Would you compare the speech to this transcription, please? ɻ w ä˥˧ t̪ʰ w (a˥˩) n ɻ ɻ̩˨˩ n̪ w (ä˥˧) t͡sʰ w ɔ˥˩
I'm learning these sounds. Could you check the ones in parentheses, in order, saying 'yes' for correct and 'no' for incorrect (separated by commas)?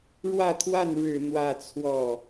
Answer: yes, yes